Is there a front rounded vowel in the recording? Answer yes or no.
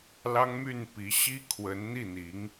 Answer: yes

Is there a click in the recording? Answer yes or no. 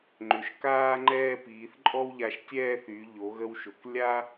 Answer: yes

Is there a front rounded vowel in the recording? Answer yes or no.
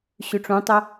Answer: yes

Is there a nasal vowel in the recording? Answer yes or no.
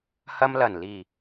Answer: no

